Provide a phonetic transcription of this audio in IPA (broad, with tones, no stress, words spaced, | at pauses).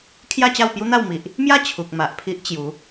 kʰja˥˧t͡ɕa˥˧wpju˦n̪a˥˧w mi˨ʔ | mja˥˧ t͡ɕʰu˨k̚ma˨ʔpʰi˦ʔ t͡ɕju˨˦